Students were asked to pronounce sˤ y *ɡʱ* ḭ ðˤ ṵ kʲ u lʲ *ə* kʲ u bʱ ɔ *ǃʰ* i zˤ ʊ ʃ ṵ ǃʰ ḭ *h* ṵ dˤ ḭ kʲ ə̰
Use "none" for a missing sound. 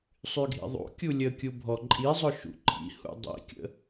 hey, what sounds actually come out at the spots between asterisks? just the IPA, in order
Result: ɡʱ, ə, ǃʼ, h

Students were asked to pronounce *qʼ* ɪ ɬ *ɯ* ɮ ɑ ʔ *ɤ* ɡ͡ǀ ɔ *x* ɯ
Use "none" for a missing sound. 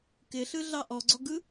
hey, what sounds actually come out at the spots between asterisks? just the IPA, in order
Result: k, ɯ, ɔ, ɡ

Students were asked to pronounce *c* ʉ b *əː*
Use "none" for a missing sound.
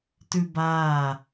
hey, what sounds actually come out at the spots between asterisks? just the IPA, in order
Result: t, aː

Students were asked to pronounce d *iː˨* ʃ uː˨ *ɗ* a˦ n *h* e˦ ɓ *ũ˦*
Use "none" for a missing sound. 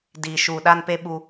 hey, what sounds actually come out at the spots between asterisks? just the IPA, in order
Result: iː˨, ɗ, p, u˦

